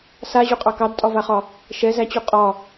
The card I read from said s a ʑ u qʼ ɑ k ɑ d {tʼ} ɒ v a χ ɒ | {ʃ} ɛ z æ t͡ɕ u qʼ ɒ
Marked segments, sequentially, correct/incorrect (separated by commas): correct, correct